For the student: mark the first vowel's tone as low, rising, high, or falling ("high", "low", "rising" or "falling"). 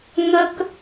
high